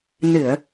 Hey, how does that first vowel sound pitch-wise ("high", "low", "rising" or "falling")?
low